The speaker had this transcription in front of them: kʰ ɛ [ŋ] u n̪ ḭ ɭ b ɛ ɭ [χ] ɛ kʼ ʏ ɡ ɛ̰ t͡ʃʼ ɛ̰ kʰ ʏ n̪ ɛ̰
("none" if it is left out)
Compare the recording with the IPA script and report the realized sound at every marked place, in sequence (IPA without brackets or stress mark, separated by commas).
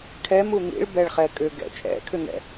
m, χ